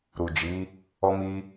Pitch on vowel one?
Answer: low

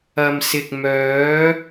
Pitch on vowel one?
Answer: low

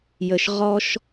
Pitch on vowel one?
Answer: low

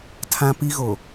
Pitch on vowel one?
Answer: high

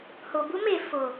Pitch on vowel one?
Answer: low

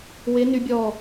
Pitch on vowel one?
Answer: rising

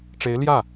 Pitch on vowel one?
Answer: rising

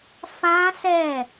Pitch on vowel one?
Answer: high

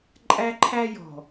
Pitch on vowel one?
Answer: high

